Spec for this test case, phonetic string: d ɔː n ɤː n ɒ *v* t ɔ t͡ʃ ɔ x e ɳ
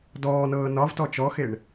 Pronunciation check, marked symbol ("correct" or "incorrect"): correct